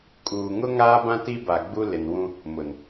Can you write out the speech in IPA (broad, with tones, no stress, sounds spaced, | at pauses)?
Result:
kʼ uː˨ ŋ ʊ˦ ŋ aː˦ b ã˦ t i˦ b a˨ ɡ͡b u˦ l ɪ˨ n w ũ˦ | m ʊ˨ n